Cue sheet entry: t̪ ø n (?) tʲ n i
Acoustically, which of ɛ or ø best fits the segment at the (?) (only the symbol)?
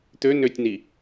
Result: ø